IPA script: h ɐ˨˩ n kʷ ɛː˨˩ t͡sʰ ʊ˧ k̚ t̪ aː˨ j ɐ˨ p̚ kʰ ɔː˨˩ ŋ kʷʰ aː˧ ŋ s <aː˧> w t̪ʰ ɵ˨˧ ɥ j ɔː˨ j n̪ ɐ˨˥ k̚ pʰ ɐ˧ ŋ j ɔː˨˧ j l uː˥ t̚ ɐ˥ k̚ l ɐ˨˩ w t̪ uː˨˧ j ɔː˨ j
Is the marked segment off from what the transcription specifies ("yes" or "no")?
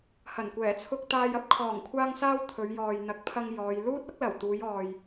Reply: no